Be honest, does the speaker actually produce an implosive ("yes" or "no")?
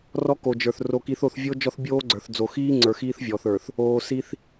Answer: no